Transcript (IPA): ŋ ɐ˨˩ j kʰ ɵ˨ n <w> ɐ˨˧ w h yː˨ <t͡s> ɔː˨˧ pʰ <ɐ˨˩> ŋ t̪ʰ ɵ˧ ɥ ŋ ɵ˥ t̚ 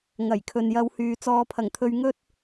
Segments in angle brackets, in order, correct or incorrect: incorrect: j, correct, correct

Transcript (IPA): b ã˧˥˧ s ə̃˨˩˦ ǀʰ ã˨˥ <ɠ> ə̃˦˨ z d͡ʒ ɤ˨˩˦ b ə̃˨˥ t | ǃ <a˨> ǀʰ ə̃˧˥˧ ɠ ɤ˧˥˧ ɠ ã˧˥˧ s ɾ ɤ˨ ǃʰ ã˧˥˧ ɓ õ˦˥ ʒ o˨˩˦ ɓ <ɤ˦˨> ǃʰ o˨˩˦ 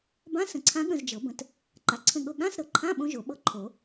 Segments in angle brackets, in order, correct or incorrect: correct, correct, correct

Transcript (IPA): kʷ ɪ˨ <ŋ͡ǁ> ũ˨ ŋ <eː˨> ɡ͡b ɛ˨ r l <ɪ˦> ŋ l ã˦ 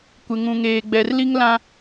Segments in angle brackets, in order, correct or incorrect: incorrect: ŋ, correct, incorrect: i˦

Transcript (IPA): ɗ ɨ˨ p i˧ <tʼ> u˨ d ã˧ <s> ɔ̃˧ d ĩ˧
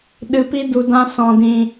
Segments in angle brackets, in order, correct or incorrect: incorrect: d, correct

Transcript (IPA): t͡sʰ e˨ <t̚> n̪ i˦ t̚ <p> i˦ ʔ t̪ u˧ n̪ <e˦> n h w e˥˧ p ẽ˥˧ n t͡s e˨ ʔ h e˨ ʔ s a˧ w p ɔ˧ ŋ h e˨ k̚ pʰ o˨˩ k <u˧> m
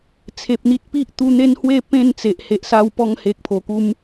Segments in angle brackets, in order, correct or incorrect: incorrect: p̚, correct, correct, correct

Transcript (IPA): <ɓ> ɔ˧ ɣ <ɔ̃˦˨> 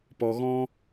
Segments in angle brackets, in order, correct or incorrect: incorrect: p, incorrect: ɔ̃˦

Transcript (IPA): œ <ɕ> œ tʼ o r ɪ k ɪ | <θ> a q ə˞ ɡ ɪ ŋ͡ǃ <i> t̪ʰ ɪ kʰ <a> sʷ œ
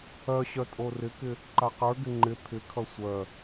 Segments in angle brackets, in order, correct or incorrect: correct, incorrect: ǃ, incorrect: ɪ, incorrect: ʌ

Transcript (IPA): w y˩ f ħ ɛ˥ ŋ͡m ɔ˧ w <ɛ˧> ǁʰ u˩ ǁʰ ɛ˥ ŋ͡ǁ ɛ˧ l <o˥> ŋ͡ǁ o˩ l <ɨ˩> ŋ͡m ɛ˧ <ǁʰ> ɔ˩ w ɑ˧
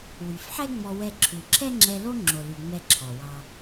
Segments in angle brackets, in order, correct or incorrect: correct, correct, incorrect: y˩, correct

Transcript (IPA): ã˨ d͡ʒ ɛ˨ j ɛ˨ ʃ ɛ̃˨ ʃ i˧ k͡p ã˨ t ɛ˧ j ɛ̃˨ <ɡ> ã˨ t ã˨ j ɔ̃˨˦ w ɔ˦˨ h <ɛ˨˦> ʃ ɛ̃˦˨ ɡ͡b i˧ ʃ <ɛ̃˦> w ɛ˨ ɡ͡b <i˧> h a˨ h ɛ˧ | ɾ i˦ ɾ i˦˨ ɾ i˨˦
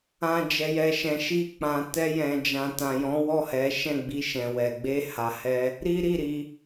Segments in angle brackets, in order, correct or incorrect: incorrect: d͡ʒ, correct, incorrect: ɛ̃˨, incorrect: e˧

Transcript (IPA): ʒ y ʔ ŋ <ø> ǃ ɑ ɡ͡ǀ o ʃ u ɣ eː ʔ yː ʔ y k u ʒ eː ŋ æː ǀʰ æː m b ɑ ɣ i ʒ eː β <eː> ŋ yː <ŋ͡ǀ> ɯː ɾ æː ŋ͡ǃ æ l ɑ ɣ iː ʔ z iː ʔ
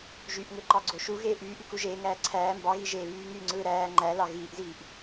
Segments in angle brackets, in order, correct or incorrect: correct, incorrect: yː, correct

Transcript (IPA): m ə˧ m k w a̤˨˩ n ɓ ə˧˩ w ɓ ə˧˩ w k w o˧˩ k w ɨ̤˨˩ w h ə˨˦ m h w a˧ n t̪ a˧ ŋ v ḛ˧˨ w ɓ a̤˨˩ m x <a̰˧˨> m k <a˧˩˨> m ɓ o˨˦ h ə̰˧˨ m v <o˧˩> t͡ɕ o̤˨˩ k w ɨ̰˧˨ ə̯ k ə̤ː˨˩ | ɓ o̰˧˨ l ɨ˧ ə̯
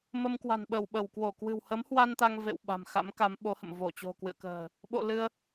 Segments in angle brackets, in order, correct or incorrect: incorrect: a̰˧˥, incorrect: a˨˦, correct

